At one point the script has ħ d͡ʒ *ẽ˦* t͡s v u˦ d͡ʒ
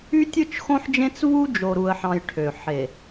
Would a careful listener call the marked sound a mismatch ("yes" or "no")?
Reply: no